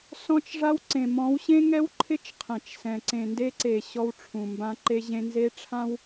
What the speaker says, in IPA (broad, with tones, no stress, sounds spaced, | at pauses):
s ɔ̃˦ t͡ʃ ʐ a˦ w ǀ ẽ˨ m ɔ̃˨˦ w ɕ ẽ˦ ŋ ɛ˦ w ǃʰ ɪ˦ t͡ʃ qʰ ɛ̃˨ t͡ʃ s ɛ̃˨ ǀ ẽ˨ n d e˦ ǀ e˨ ɕ ɔ˦ w ʈ͡ʂʰ ũ˨ m b ã˦ ǃ e˦ ʑ ẽ˦ n z e˦ ʈ͡ʂʰ ã˦ w